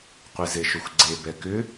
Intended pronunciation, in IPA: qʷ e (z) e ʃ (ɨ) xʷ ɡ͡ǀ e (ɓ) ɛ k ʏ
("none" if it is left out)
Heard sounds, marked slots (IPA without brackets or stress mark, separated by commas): z, ʏ, b